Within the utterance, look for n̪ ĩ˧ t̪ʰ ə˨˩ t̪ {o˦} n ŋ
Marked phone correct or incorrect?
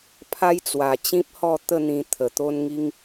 correct